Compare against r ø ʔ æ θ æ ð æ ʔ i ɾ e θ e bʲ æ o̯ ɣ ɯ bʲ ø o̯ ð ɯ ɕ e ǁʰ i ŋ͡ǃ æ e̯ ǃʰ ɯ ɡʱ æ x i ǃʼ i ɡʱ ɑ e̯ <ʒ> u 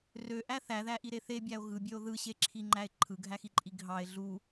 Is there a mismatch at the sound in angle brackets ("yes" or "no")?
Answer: yes